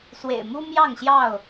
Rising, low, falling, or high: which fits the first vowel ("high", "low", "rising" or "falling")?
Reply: low